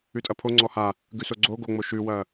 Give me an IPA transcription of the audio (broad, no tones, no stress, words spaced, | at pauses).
ʉtʼɐpʰo ŋ͡ǀɔha | ɡʉsoɡ͡ǀo ɡoŋ͡mo ʃʉwɐː